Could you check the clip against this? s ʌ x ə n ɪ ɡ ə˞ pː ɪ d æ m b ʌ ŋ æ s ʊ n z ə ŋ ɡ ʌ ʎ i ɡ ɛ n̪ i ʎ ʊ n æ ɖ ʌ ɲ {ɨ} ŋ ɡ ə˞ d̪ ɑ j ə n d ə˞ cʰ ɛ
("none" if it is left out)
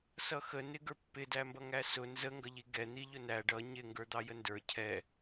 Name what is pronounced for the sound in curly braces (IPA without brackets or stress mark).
ɪ